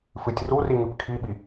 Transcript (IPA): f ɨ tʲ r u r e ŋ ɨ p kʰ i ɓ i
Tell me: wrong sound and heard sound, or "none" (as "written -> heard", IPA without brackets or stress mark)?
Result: e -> i